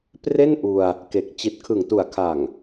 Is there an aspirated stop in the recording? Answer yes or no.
yes